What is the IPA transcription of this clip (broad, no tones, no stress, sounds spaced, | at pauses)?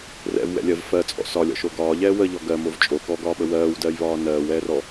r ɛ̰ v w ɛ̰ lʲ ɜ v f ɜ t͡sʼ ɔ̰ s ɒ lʲ ɔ̰ ʃ o ɡ ɒː ʎ ɛː w ə ʎ ɔ ɡ ɜ m o v t͡ʃʼ o k ɔ ɡ ɒː ɓ ə w ɜː w d ɜː j β ɒː n ɜː w ɛː r ɔ